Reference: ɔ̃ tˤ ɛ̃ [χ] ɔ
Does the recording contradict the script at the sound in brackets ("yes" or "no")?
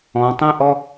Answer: yes